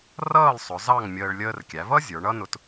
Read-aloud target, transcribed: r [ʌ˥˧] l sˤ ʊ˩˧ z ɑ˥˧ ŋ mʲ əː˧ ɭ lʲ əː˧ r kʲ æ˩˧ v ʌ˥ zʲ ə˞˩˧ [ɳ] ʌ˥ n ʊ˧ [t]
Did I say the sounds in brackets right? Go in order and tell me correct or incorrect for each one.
incorrect, correct, correct

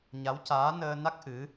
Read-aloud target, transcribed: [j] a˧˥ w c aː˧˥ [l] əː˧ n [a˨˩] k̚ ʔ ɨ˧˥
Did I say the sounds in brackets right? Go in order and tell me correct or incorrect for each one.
incorrect, incorrect, incorrect

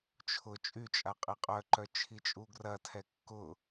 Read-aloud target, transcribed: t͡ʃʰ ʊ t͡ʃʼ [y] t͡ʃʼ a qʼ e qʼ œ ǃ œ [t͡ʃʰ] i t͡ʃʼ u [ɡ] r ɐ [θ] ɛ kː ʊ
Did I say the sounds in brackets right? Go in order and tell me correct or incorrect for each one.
correct, correct, correct, incorrect

